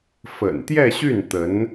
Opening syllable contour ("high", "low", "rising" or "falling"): low